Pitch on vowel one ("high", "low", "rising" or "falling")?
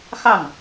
falling